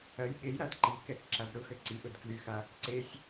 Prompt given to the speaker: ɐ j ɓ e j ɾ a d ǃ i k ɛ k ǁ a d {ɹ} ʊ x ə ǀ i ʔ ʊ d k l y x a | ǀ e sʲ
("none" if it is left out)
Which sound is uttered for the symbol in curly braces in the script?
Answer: ɾ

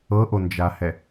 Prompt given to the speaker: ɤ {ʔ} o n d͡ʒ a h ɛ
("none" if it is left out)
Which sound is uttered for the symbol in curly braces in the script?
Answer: ʔ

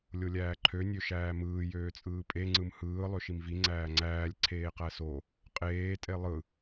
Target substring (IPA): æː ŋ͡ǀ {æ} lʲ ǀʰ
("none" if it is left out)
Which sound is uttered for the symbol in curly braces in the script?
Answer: æː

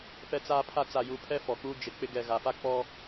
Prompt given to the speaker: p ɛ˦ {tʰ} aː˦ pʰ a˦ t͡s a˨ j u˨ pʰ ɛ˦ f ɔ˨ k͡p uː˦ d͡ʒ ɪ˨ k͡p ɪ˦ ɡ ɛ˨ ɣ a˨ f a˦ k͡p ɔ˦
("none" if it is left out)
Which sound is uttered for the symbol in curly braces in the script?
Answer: t͡s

